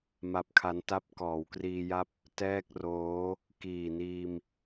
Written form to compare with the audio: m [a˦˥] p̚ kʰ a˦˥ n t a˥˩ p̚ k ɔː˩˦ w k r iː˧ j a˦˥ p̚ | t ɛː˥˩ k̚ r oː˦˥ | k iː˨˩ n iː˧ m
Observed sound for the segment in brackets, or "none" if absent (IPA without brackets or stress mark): a˦˥